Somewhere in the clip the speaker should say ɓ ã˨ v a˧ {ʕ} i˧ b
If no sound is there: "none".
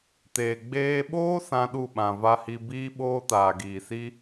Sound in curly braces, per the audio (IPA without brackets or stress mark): h